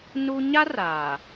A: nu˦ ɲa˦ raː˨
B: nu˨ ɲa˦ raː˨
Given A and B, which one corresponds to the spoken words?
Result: A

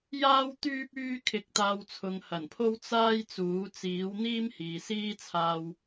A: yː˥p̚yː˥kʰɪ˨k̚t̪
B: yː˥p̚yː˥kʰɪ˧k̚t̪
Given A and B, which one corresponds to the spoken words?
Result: B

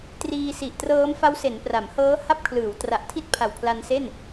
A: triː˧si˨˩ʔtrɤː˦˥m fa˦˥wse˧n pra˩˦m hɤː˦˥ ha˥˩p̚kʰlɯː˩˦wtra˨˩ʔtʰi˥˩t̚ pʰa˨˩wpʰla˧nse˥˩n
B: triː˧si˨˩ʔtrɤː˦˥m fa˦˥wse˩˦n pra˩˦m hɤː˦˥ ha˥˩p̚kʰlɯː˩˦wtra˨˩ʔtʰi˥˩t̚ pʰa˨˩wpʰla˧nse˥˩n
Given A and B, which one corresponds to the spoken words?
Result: B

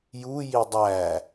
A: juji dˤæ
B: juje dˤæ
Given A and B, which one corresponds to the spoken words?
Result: A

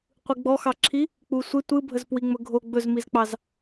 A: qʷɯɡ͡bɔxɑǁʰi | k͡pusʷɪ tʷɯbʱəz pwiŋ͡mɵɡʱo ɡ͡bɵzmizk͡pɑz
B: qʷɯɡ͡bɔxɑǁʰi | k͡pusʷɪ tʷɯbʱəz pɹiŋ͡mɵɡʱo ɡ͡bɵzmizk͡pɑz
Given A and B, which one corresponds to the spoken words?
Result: A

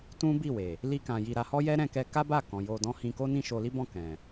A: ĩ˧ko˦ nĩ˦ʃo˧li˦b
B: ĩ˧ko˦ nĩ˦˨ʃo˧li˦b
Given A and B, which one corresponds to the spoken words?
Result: B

